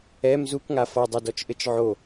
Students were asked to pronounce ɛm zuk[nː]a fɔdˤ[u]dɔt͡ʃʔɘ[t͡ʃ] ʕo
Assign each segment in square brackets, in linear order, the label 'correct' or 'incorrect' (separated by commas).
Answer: incorrect, incorrect, correct